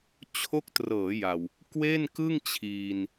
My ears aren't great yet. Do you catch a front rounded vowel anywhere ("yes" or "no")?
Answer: no